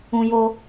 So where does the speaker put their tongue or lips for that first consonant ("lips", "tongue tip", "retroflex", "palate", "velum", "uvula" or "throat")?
palate